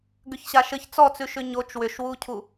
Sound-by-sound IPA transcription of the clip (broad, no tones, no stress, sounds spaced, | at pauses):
ɡ ʏ ç ɕ a ʃ ɘ ç t͡s ɔ t͡s ʉ ʃ ʏ ɲ o t͡ʃ w ʏ ʃ w u cʰ u